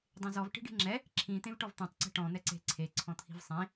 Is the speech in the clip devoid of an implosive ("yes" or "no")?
yes